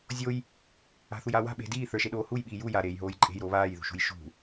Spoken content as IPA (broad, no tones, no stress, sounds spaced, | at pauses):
zʲ o j | a̤ θ u j aː w a̤ ɓ e̤ d iː θ ə˞ ʃ e ɗ oː h u j ɓ iː j u j a ɾ eː j ɦ oː j ǃʼ e̤ j ɾ oː β aː j ð ṳ ʃ ṳ j ʃ ṳ